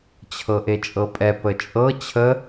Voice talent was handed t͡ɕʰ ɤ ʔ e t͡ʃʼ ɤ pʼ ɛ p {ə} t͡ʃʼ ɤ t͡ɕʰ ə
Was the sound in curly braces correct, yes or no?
yes